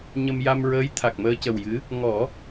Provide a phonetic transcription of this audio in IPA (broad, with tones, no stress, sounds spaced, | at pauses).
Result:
ɲ ə˧ m j a˧ m ɹ əː˧˥ j t̪ʰ a˨˩ k̚ m əː˧ c ə˨˩ w j ɨ˧˥ | ŋ ɔ˨˩˦